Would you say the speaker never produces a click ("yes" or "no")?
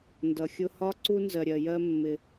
no